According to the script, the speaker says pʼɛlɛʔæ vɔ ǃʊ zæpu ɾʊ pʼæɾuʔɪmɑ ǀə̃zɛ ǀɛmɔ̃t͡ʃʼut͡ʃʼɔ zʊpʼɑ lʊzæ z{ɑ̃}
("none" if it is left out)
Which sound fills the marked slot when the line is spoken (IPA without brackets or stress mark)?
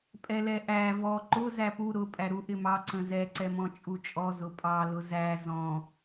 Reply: ɔ̃